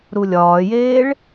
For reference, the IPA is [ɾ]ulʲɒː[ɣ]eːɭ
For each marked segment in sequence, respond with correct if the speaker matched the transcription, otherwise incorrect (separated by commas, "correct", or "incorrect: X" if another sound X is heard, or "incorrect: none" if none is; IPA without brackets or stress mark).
correct, incorrect: j